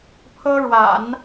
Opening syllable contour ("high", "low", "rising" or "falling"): high